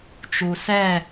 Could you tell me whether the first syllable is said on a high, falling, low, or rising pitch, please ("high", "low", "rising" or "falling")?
low